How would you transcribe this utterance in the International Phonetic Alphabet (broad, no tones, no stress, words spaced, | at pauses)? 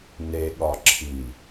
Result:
ne ɠɒ ǁʰi